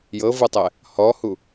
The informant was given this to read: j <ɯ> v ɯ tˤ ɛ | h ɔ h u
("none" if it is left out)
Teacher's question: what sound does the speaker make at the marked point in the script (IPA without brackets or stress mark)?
ɤ